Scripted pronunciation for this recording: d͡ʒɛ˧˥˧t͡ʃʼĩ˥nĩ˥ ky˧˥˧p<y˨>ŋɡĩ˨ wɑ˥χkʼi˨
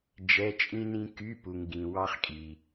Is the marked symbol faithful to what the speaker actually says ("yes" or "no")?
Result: no